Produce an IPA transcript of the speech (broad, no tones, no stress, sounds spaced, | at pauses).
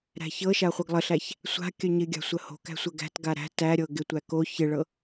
ɾ æ̤ ç ɤ ʃ a χʷ ɤ ɡ lˠ ə ɬ æ ç | sʷ a̤ kʲ œ ɲ ɪ ɡʲ a̤ sʷ ə h o̤ k æ̤ sʷ ə ɡ æ̤ t ɡ a ɾ æ̤ t æ ɾʲ ɤ ɡ ɪ tʷ æ k o ç ɪ ɭ ɤ